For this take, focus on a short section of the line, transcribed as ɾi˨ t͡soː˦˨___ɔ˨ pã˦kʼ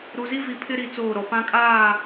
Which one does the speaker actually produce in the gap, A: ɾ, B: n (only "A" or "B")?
A